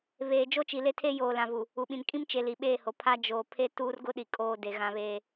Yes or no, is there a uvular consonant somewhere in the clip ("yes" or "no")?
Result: no